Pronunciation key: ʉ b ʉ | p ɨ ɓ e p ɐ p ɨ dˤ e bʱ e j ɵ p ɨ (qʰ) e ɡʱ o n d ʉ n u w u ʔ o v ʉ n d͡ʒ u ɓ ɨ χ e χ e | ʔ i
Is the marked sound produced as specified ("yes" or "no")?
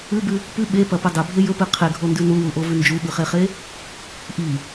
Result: yes